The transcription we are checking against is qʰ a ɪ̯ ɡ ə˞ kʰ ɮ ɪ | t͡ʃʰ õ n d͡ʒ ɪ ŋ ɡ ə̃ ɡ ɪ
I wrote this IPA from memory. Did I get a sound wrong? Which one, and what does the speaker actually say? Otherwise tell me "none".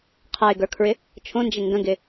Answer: ɮ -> ɹ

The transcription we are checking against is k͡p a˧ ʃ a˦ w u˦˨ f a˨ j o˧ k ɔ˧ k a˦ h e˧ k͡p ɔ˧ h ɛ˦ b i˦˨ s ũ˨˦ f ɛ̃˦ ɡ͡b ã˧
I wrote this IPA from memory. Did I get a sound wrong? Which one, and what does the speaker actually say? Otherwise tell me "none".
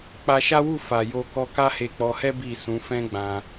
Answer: none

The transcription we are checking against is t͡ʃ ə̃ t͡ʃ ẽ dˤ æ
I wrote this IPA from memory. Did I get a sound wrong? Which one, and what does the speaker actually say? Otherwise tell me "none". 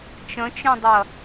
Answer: æ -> ɐ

